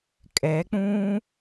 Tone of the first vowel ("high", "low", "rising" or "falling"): rising